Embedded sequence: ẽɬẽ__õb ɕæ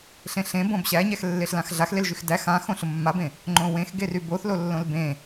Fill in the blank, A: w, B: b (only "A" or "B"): B